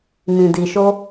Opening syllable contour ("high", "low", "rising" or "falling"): low